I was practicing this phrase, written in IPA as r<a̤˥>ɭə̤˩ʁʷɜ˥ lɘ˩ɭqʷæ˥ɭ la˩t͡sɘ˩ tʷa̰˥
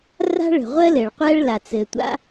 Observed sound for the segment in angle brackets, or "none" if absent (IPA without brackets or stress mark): a̤˥